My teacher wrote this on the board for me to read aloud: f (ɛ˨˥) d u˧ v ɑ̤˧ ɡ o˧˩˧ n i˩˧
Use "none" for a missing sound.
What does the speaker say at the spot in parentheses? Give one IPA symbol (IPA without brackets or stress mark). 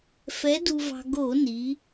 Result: ɛ˨˥